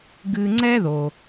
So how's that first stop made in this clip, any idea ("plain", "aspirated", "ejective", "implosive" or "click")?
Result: plain